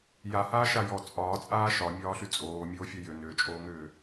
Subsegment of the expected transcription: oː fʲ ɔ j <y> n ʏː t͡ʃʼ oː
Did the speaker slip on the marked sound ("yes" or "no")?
yes